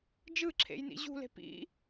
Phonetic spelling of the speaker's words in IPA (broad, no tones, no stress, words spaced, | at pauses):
d͡ʒɯǁʰḛjnḭ ʑṳle̤ pḭ